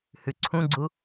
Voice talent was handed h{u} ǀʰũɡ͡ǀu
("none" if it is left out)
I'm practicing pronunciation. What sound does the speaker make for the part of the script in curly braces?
ʉ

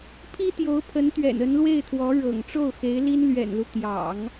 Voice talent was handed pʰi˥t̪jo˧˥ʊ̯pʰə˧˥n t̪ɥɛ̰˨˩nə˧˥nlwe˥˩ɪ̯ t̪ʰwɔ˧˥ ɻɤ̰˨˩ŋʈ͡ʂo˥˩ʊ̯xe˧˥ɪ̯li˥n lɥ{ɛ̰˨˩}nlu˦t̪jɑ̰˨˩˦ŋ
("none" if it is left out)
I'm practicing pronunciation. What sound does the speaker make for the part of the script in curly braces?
ɛ̰˨˩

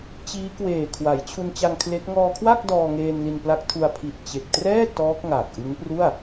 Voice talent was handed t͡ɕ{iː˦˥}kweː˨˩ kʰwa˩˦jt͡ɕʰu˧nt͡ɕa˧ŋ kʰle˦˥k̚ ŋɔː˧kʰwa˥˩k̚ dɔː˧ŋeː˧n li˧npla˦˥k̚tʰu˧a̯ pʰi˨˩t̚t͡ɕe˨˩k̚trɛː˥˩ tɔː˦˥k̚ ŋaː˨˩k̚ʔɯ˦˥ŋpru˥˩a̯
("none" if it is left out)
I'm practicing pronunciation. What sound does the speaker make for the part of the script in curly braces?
iː˦˥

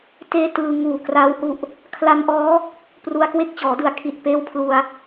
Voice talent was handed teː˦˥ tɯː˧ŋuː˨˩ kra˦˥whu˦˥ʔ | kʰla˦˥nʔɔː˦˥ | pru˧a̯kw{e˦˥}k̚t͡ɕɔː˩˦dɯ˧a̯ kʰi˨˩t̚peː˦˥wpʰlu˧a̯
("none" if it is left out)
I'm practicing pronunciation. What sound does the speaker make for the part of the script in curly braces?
e˦˥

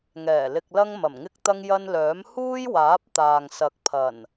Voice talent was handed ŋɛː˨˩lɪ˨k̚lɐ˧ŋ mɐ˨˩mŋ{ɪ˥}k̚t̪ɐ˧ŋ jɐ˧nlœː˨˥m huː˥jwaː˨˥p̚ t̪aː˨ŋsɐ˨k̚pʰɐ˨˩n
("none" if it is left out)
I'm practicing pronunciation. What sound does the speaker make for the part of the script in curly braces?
ɪ˧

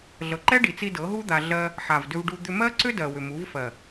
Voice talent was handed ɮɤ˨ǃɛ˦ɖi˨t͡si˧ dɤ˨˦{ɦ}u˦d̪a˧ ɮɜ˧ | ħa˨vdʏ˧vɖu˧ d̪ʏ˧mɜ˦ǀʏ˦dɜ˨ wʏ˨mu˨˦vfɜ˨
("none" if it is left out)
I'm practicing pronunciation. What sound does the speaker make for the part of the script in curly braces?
ɦ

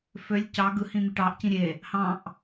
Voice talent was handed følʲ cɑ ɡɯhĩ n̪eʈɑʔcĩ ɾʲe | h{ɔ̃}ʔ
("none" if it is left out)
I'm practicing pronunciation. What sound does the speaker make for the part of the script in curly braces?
ɑ̃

